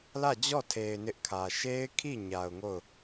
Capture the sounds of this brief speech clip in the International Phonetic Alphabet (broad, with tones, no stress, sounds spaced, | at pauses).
l ä˦˨ d͡ʑ ɔ˦˨ tʰ e˨ ɪ̯ n ɪ˦ ʔ kʰ ä˨ ʃ e˦ ɪ̯ kʰ i˦˨ ɲ a˨ ʊ̯ ŋ o˦˨ ʊ̯